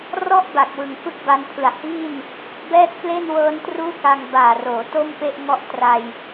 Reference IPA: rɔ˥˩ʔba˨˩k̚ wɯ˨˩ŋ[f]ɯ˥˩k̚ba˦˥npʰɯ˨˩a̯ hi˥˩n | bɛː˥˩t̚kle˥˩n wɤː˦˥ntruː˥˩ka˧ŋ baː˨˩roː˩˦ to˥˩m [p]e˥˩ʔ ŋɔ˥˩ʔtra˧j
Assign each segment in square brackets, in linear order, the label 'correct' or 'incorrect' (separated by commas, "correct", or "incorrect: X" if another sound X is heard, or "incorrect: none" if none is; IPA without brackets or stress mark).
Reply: correct, correct